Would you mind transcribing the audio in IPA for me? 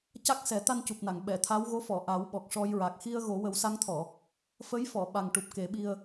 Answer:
c a˦˥ k̚ s ɛ˨˩˦ t̪ a˧ n c u˨˩ p̚ n a˨˩˨ ŋ ɓ ɛ˨˩˨ t̪ʰ a˧˥ w ɣ o˧˥ f ɔ˨˩˨ ʔ a˨˩˦ w ɓ ɔ˨˩ k̚ ʂ ɔ˧ j ɹ a˨˩ k̚ x i˧ ə̯ ɣ o˨˩˦ w ə˨˩˦ w s a˧˥ ŋ t̪ʰ ɔ˨˩˨ | f ə˧˥ j f ɔ˨˩˨ ɓ a˨˩ ŋ ʈ u˨˩ p̚ k e˨˩˦ ɓ i˧ ə̯

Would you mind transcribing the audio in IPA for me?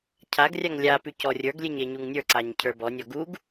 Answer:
cʰ a ɡ rʲ a ŋ lʲ a p ʉ c ɔ rʲ ə˞ ɡ lʲ e ɲ e ɲ u ŋ nʲ ə˞ ǀ a ɲ cʰ ə˞ b ɔ nʲ ɔ ɡ u ɡ

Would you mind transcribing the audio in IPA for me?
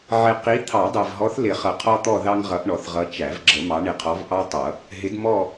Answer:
ʕ ɪ˨ q i˨˦ t̪ʰ ɑ˨˩˦ dˤ æ˨ v ɦ ɔ˨˦ θ l ɪ˨˩˦ χ ʌ˨ qʰ ɔ˦ t̪ ɔ˦˨ ð ɑ˦ ŋ ʁ ʌ˨˦ ʔ ɳ ɔ˨ θ ʁ ʌ˨˦ t͡ʃ æ˨˩˦ v ɡ͡ǁ ə˨˩˦ m ɑ˨˦ ɳ ɪ˨ qʰ ɔ˨˦ v ʔ ɑ˦ tˤ ʌ˨˩˦ | ɦ ɪ˨˦ d m ɔ˦˨

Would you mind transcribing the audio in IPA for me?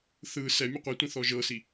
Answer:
θ ɯ s ɛ mʲ ɯ qʷ i tʷ ĩ θ ɔ ʒ ɤ s i

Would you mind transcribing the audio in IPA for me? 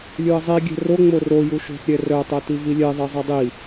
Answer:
lʲ u ə̯ zˤ i ɡʲ ɛ̤ r o ŋ͡m o r o j u ʃ o̤ t ɾʲ ɛ r œ tˤ œ t i v i lʲ ɛ ðˤ i zˤ ɛ dˤ i

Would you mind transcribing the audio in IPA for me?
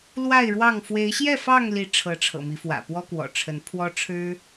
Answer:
l w a˥˨ ɪ̯ ɻ w ɑ˥˨ ŋ f w e˨˦ ɪ̯ ɕ j ɛ˥˨ f ɑ˥˨ ŋ l i˨˦ ʈ͡ʂʰ ɤ˨˦ ʈ͡ʂʰ ɤ̰˨˩ m i˨˦ f w ä̰˨˩ p w ɔ˦ k w ɔ̰˨˩ ʈ͡ʂʰ ə˨˦ n pʰ w ɔ˦ ʈ͡ʂʰ ɻ̩˦

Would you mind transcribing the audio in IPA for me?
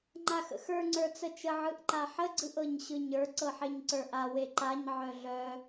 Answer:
ŋ͡ǃ a x ə̰ x ə˞ ŋ͡ǀ ə˞ t͡s ə t͡ʃ ə ʕ ɯ ʔ ǃ a ħ ə ɡ͡ǀ ɯ ʔ ɤ ɲ ɕ ɯ ɲ ə˞ ǀ ɤ ħ e ɲ ǀ ə˞ ʔ a w e ǃ a ɲ ʕ œ ɮ œ

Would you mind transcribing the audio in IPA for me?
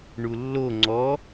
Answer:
ɳ u lː o ŋ͡ǀ ɔ

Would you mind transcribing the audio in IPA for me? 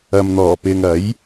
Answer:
ɐ˨ m n̪ ɔː˨˩ p ɪ˨ ŋ ɐ˨˥ j

